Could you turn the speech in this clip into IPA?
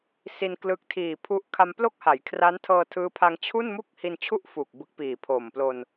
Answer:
si˧nklɯ˦˥k̚ tʰiː˨˩pʰu˦˥ʔ kʰa˧mplo˥˩k̚ha˩˦j kʰra˦˥ntʰɤː˧tʰɯː˦˥pʰa˧ŋ t͡ɕʰu˥˩nmu˥˩k̚ hi˧nt͡ɕʰu˥˩ʔ fu˨˩k̚bɯ˦˥k̚piː˨˩pʰoː˨˩m plo˧n

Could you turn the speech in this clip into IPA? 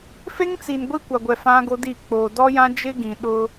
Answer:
fe˦ŋt͡si˨n ɡʷi˦kʷa˨ɡʷɛ˨ fã˦ɡo˦ di˦˨ k͡poː˨dɔ˦jã˦ d͡ʒɪ˦ɡĩ˨ ɗʊ˦

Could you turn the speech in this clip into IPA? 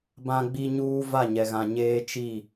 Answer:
bã˦ɡ͡bi˦ɲuː˦ va˦˨ɲɛ˨ɣã˨ ɲeː˦t͡ʃi˦˨

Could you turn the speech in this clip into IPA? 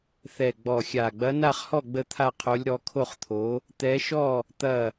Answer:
θɛ˥˧ɡ͡bɔ˥˧xʲa˥˧ ɡ͡bɐ˧˥na˥˧χhɔ˥˧ ɡ͡bə˥˧t̪ʰa˥˧qʰo˧˥lʲ ɾɔ˧˥kʰo˥˧χt̪ʰo˧˥ | t̪ɛ˧˥ʃɔ˥˧ | t̪ɐ˥˧

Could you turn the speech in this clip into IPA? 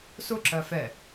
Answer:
sʊ ǁɜfɛ

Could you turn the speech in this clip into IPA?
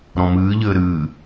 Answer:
ɾɔ̃mɨːʎɘː ɾɨː

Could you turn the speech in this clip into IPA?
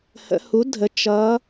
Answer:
hə̰˩˧hu˩˥dʱə˩˧ t͡ʃʌ˩˧

